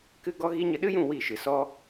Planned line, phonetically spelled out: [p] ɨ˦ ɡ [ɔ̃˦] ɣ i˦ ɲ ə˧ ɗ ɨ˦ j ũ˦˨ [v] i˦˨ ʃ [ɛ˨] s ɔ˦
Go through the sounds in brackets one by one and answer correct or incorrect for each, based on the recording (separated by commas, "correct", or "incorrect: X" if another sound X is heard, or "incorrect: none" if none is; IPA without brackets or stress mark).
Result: incorrect: k, incorrect: ɔ˦, incorrect: w, incorrect: ɨ˨